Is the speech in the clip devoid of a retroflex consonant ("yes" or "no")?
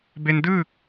yes